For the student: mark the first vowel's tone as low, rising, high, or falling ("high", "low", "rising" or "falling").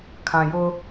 low